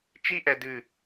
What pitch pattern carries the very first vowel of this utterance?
falling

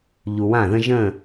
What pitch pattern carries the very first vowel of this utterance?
low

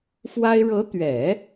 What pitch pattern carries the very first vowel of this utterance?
high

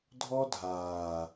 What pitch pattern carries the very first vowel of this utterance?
high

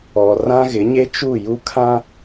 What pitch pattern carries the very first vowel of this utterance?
low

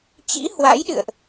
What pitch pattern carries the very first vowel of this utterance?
rising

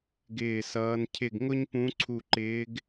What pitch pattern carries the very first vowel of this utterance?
falling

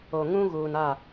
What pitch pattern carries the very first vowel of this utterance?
low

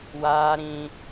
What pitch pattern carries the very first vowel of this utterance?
high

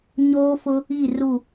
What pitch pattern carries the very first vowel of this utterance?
high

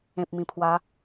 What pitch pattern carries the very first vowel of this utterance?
low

